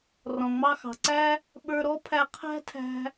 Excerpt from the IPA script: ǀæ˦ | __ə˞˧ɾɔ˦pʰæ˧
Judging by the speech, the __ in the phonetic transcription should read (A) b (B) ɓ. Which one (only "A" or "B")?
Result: B